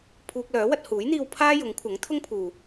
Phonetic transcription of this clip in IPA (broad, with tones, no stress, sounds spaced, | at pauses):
pʰ uː˧ k̚ l œː˨˥ w ɐ˧ t̚ h uː˨˥ j n̪ iː˧ w pʰ aː˥ j ʊ˨˥ ŋ kʷʰ ɐ˨˥ ŋ t̪ʰ ʊ˥ ŋ pʰ uː˨